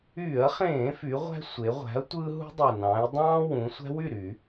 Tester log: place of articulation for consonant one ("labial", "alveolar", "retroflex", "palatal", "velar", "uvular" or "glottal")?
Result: uvular